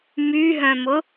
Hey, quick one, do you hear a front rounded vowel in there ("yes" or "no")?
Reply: yes